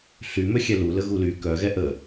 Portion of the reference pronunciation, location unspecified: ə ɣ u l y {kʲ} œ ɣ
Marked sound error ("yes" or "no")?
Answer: yes